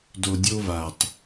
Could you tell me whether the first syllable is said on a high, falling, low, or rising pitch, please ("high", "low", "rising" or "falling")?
low